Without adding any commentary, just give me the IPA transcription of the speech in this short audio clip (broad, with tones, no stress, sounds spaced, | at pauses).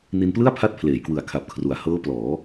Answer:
n i˧ n p l ɯ˥˩ a̯ pʰ a˦˥ t̚ pʰ l eː˩˦ j k w ɯ˨˩ a̯ kʰ a˨˩ p̚ kʰ r u˩˦ a̯ h ɤː˦˥ p l ɔː˩˦